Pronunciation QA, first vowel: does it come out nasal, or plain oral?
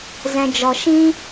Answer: nasal